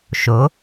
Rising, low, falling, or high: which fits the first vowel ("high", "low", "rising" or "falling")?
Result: rising